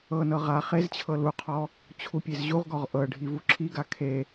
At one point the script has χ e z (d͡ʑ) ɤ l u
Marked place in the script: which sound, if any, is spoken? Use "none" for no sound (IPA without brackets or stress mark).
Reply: t͡ɕʰ